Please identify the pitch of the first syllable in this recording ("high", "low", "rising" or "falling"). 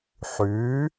rising